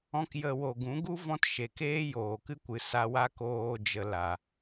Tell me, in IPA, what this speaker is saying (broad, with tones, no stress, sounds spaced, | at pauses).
ɔ̃˦ k j ə˧ w o˨ ɡ ũ˨˦ ɡ u˦ v ɔ̃˦ t ʃ e˨ k eː˦ j oː˨ k ɨ˦ kʷ ɨ˨ s a˧ w a˦ k oː˧ d͡ʒ ə˧ l a˨